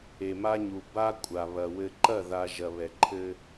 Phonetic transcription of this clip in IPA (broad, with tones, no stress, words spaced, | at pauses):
e˨ma˦ɲu˨ ba˦ kʷʼa˨βɐ˨ wɘ˨ǃɐ˦˨ða˨ ʒɐ˨βɛ˨ǃʰɘ˦